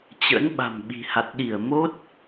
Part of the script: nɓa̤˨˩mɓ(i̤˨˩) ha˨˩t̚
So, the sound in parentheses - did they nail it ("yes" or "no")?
yes